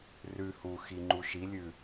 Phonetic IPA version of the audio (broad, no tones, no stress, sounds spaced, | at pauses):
r ʉ h u x i ŋ͡ǃ u ʃ i lʲ ʉ